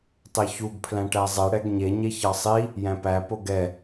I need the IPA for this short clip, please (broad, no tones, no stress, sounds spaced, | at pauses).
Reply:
tˤ e ç u ɡ pʰ l æ̃ ʈ æ zˤ ɛ ɽ ɛ ɡ ɲ e ɲ e ç ɑ sˤ i | j æ̃ p æ p o ɡ ɛ